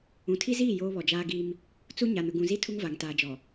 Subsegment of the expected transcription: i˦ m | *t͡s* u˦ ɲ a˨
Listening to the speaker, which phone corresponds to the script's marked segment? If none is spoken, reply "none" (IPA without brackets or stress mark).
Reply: t͡s